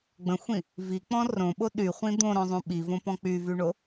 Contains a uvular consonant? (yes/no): yes